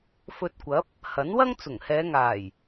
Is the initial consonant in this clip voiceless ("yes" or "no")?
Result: yes